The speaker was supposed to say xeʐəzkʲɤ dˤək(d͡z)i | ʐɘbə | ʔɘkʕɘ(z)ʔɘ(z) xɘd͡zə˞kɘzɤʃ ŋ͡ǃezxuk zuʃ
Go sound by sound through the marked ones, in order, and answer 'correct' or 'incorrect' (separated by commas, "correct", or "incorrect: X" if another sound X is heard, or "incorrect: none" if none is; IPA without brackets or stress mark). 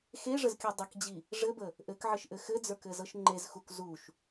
incorrect: d͡ʑ, incorrect: ʃ, incorrect: none